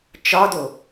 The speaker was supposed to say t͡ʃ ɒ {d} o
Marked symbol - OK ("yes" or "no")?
yes